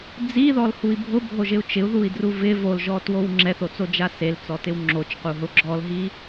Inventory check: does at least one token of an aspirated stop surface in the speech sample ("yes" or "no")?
no